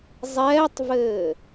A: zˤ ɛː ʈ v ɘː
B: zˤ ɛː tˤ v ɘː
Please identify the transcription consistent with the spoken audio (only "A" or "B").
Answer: B